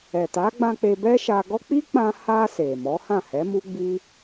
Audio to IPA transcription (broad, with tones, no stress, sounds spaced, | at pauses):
ɛ˨ t a˨˦ ɡ͡b ã˧ k͡p e˧ b ɛ˦ ʃ a˧ ɡ ɔ˦ k͡p i˦ k͡p ã˧ h a˧ s e˨ m ɔ˨˦ h ã˦˨ h ɛ˨˦ m u˦ ɡ͡b i˦